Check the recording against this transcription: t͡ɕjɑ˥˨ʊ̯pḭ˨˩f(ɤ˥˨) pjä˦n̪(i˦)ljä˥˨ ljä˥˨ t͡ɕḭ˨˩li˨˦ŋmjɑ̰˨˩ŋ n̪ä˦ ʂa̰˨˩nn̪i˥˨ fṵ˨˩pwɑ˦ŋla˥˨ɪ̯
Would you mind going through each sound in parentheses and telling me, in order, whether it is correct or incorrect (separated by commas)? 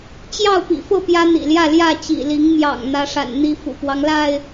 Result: correct, incorrect